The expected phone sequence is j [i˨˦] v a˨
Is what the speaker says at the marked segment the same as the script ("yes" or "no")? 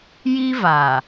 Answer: no